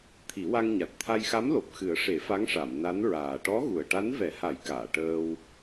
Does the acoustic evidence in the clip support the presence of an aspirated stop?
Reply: yes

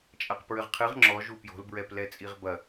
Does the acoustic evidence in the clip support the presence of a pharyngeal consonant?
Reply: no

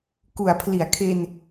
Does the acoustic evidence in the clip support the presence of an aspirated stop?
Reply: yes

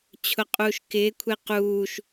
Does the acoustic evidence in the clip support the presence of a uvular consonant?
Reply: yes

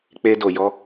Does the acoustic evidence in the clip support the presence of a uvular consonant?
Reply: no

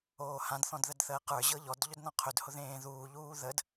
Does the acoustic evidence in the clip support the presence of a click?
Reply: no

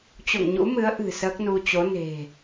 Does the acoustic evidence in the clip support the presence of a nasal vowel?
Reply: no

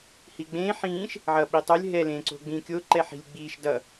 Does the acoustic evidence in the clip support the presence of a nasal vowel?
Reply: yes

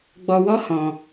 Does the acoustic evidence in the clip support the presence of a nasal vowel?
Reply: yes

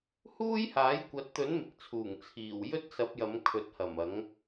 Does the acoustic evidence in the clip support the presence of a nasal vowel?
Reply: no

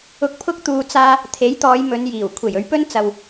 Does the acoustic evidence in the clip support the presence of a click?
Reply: no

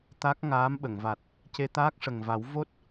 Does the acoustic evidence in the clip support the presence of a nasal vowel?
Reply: no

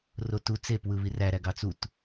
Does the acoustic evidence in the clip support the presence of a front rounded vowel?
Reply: no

